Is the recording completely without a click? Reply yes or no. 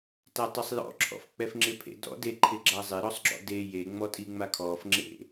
no